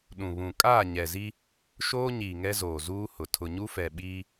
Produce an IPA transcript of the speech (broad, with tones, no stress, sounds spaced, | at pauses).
ɗ ũ˨ β ũ˨ kʼ aː˦˨ ɲ ɛ˨ z i˦ | ʃ oː˦ ɲ iː˨ ŋ ɛ˦ z oː˨ z uː˦ h ʊ˨ tʰ ʊ˨ ɲ u˦ f ɛ˨ ɓ iː˦